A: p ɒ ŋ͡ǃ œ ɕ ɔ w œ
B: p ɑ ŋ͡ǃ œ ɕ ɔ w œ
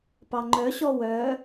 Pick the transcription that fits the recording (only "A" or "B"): B